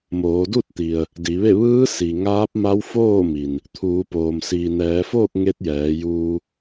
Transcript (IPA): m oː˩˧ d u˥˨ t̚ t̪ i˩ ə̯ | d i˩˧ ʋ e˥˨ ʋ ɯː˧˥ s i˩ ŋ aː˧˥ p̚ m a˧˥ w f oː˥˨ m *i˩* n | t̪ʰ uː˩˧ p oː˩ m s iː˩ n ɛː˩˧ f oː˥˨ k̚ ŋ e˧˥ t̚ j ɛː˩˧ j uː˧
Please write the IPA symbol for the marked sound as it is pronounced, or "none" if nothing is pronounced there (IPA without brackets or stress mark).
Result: i˩